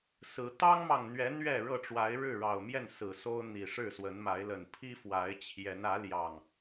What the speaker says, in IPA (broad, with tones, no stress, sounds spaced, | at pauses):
s ɹ̩˨˦ t̪ ɑ˦ ŋ m ɑ˨ ŋ n̪ ɥ ɛ˨˦ n̪ ɥ ɛ˥˨ ɻ ɤ˥˨ ʈ͡ʂ w a˨˦ ɪ̯ ɻ ɻ̩˥˨ ɻ ɑ˨˩ ʊ̯ m j ɛ˥˨ n s ɹ̩˨˩ s o˦ ʊ̯ n̪ i˨˩ ʂ ɻ̩˥˨ s w ə˨˦ n m a˨˦ ɪ̯ l ə˨˩ n pʰ i˦ f w a˨˦ ɪ̯ t͡ɕʰ j ɛ˨˦ n ä˨˦ l j ɑ˨˩ ŋ